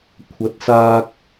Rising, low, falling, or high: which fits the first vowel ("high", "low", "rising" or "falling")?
rising